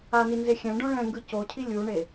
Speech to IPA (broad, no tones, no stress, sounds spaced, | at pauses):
a n i n z e xʲ ɛ̃ ɖ õ ɭ ɛ̃ ŋ ɡ ɯ c o cʰ i lʲ u ɳ e